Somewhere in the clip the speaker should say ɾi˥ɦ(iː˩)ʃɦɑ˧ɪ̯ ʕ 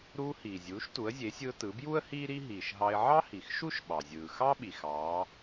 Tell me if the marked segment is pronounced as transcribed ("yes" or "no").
yes